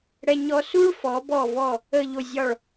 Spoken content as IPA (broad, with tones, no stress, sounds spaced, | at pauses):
ɽ ɛ˧ ɲ ɔ˧ s u˥ ɭ f ɔ˩˧ b ɔ˧˩ v ɔ˧˩ | ə˧˩ ʎ o˧˩ zʲ ɒ˧˩ ɭ